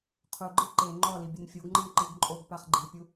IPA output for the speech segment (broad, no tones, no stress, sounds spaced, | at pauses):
qʰ u ɡ͡ǃ ɨ ǃ e ŋ͡ǃ ɔ l i bʲ ɨ n fʲ o ɡ ŋ͡ǃ ɨ n ǃ ɨ ɡ ǃʼ o ɡ p a χ ɡ͡ǃ i pʲ u